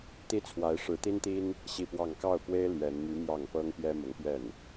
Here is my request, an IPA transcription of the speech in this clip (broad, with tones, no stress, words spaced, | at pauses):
t̪i˥t͡sʰwa˧˥ɪ̯ ʂɻ̩˧˥t̪i˥nt̪i˥n | ɕi˥˧pwɑ˥˧ŋ kɑ˥˩ʊ̯pwe˥ɪ̯ lɥɛ˧˥n my˧˥ mjɑ˥˩ŋ pɤ˥ŋpjɛ˥mʊ˧˥ŋpɥɛ˥˩n